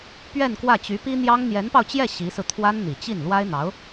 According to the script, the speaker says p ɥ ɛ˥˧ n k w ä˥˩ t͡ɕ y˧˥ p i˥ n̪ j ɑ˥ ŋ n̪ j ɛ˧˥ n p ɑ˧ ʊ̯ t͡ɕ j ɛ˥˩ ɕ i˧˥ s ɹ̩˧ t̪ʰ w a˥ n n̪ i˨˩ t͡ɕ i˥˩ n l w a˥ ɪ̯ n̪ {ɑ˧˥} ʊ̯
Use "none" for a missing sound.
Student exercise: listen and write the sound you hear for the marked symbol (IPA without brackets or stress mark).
ɑ˧˥